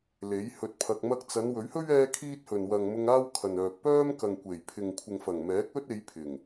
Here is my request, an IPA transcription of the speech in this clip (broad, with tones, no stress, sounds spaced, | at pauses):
l e˨˥ j h ɵ˧ t̚ pʰ ɐ˧ k̚ m ɐ˧ k̚ t͡s ɐ˨˧ n w ɵ˨˥ ɥ h ɵ˥ ɥ ɛː˥ kʰ iː˥ t̚ h ɵ˨ n w ɐ˨ ŋ m ʊ˧ ŋ aː˥ w kʰ ɐ˨ n œː˨ k̚ p œː˥ m k ɐ˨ ŋ kʷ e˨˩ j pʰ ɪ˨ ŋ kʷʰ ɪ˨ ŋ f ɐ˨˩ ŋ m ɛː˨˥ k̚ ɵ˥ t̚ e˨˧ j pʰ ɪ˨˩ ŋ